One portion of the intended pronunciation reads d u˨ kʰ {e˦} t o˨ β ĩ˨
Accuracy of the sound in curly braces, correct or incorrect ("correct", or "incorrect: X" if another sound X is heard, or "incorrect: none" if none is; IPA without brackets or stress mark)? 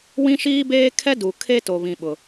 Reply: correct